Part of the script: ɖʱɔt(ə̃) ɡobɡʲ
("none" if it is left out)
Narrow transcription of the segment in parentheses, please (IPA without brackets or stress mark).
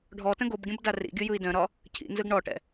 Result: ə̃